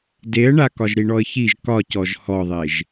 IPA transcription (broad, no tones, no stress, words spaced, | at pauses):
deə̯ɳa kɒʒɾiɳɔə̯çiʒ kɒcɔʒ hɔðˤeʒ